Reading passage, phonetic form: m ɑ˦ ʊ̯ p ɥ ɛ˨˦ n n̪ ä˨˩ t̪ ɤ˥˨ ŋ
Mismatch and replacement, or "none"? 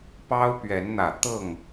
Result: m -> p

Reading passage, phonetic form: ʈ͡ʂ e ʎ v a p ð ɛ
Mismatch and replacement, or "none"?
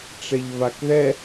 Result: p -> k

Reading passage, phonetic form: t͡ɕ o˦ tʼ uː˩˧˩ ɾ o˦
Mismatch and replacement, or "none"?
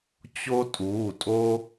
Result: ɾ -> tʼ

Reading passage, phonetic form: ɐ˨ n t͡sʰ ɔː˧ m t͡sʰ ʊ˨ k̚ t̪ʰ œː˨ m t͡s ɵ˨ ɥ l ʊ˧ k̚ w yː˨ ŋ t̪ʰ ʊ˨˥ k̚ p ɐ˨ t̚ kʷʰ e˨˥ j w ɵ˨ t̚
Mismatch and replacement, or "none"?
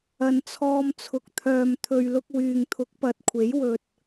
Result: t͡s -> t̪ʰ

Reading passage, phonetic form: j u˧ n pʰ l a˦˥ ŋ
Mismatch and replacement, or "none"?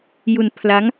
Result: none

